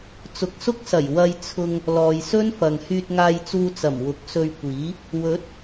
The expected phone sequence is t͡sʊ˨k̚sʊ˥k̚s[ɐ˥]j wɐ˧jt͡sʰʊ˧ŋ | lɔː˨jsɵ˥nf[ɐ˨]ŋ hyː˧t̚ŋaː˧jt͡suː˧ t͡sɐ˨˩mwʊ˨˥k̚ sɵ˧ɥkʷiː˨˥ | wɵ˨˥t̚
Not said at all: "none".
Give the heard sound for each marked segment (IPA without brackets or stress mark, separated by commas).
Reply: ɐ˨˩, ɐ˨